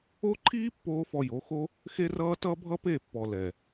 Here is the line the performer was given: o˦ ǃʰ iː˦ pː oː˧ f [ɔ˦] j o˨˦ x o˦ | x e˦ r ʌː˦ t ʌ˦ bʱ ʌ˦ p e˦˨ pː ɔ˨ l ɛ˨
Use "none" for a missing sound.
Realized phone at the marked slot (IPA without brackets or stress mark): ɔ˧